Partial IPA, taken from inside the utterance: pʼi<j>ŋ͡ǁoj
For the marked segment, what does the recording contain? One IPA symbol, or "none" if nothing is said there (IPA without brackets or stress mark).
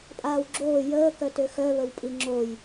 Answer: none